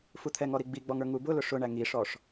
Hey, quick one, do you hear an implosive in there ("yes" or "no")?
no